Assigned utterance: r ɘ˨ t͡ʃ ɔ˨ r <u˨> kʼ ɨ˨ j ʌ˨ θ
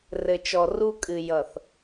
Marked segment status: incorrect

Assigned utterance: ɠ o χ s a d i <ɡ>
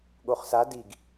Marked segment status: correct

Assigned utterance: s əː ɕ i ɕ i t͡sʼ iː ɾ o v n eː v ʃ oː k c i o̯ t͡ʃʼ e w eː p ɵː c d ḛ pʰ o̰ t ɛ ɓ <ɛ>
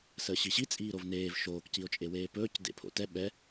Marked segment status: correct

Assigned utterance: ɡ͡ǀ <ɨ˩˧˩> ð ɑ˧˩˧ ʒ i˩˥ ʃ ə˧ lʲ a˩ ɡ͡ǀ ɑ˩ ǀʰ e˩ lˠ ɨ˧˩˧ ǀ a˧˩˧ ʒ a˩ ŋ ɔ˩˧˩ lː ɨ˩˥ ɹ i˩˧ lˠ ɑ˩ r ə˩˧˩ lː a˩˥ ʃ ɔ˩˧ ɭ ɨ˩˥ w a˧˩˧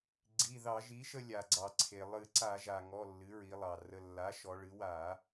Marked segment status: incorrect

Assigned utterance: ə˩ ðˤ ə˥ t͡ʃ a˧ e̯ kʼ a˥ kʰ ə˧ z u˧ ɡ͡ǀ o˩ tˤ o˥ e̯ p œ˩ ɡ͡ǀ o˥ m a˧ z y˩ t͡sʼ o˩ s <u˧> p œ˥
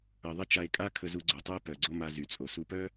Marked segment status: correct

